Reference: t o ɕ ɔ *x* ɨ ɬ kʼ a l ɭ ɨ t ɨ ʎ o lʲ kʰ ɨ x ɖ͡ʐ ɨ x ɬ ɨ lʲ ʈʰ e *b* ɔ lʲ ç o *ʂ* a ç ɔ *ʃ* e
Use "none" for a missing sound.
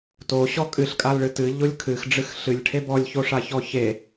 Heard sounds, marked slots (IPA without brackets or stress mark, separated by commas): kʼ, b, ʂ, ç